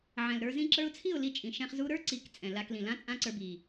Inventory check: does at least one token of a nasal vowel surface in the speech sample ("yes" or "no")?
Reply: yes